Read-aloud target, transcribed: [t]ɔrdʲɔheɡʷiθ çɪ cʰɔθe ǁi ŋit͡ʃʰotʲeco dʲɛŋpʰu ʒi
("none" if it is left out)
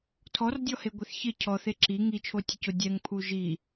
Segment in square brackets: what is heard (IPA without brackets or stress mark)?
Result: tʰ